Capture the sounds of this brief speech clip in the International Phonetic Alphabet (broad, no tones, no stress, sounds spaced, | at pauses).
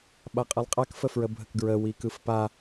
ɓ a qʼ ɯ lˠ qʼ a k f ə f ɹ ə bʱ ə k ɡ ɹ ə w i k ɯ f p a